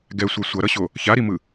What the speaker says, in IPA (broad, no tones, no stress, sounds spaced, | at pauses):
ɡ ɛ sʷ ɛ sʷ ʌ ɾ ʌ ɕ o | ç a ɾ i m ɯ